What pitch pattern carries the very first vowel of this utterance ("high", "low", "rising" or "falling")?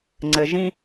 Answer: low